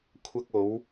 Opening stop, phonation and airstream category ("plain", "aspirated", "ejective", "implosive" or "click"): aspirated